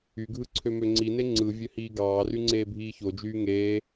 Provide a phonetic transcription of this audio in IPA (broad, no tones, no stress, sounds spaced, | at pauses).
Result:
y ɡʱ ɯ ǀʰ ø m ø ŋ͡ǀ i n e ŋ͡ǀ ɯ vʲ ø h iː ɡ ɑː r y ŋ͡ǀ eː bʱ iː ç o d͡ʒ yː ŋ eː